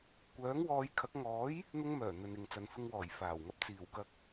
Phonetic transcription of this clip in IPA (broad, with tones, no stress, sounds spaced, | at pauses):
kʷ œː˨˥ ŋ w ɔː˨˧ j kʰ ɐ˨˥ k̚ ŋ ɔː˨˥ j | n̪ ʊ˧ ŋ m œː˨˩ n̪ ɵ˨ n ɪ˨ ŋ t͡s ɐ˨ n f ɪ˧ ŋ w ɔː˨˩ j f aː˨˩ w ŋ ɐ˧ p̚ t͡s iː˨˩ w k ɐ˧ k̚